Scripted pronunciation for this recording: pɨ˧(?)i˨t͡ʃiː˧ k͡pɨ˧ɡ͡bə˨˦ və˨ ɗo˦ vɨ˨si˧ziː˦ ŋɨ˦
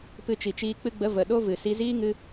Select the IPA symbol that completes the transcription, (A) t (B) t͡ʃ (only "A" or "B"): B